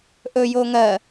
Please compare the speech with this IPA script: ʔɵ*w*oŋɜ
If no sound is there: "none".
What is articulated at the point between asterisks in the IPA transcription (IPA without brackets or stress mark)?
j